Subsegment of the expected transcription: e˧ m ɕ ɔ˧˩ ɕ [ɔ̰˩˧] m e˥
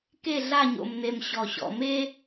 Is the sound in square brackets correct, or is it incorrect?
correct